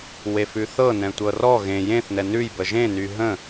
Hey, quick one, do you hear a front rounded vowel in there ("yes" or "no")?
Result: yes